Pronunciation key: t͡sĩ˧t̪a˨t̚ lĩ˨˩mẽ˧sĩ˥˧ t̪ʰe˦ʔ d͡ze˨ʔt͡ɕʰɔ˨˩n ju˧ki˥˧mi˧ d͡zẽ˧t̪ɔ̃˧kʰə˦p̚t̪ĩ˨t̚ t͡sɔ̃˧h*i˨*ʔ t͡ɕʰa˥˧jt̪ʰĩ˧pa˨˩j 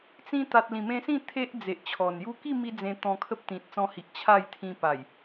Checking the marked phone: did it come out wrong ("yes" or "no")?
no